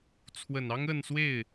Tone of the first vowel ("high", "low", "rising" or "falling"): low